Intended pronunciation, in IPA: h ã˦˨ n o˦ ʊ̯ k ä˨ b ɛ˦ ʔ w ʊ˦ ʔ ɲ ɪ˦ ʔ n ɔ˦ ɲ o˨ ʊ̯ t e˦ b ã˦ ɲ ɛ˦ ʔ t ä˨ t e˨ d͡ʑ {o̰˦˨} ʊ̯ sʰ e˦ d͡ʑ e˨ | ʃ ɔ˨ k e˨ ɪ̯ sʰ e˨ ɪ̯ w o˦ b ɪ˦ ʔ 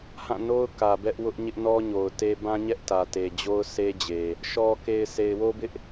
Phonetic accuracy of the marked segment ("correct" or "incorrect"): incorrect